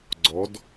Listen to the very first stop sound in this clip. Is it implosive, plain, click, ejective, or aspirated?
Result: click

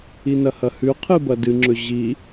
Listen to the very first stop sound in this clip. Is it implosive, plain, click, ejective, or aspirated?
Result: aspirated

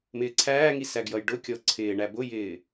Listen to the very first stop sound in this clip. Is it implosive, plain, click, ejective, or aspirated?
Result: click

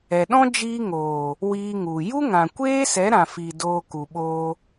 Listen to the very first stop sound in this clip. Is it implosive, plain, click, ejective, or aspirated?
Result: implosive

